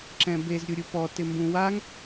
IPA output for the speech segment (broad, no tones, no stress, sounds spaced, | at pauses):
ǁ ɛ̃ b e z ɾʲ u ɾʲ u p ɔ t ɪ m b ũ w a ŋ